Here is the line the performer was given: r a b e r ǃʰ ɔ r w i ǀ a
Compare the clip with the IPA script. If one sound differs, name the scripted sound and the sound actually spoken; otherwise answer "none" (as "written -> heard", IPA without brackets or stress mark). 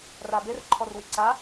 none